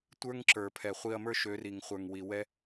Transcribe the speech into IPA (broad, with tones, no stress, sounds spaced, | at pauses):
tʷ ə˞˦ ŋ ǁ ə˞˨ pʰ ɛ˨ χʷ i˧ ɐ̯ m ə˞˦ ʃ ø˨˦ r i˨ ŋ χʷ ə˞˨ ŋ w i˨ w ɛ˦